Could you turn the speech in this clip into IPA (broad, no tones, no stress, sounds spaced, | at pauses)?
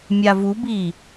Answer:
mʲ a v u b i